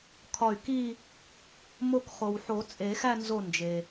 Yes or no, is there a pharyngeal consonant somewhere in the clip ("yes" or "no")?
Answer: yes